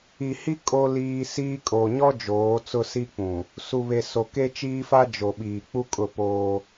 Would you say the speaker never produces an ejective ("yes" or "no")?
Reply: no